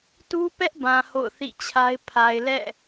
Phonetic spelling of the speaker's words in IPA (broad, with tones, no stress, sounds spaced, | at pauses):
t u˦ p ɛ˦ ʔ b ã˨ h o̰˦˨ ʊ̯ θ ḭ˦˨ t͡ɕʰ a˦ ɪ̯ pʰ a˨ ɪ̯ l ɛ̰˦˨